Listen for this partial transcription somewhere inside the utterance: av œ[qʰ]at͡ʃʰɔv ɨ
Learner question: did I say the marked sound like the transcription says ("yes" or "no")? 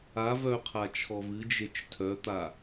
yes